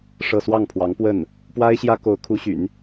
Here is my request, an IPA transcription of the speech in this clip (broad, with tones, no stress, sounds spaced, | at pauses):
ʂ ɤ˥˧ s w ɑ˥˩ ŋ pʰ w ɑ˧˥ ŋ p w ə˥˩ n | p w a˥ ɪ̯ ɕ j ä˥ k o˧˥ ʊ̯ kʰ u˧˥ ɕ y̰˨˩˦ n